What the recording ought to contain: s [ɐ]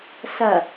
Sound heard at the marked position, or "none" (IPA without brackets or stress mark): ɐ